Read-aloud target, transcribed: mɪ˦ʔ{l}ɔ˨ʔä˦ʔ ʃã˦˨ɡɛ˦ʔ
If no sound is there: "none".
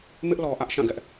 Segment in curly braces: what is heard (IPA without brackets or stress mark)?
l